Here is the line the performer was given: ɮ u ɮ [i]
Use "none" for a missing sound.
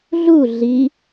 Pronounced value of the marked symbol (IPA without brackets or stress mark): i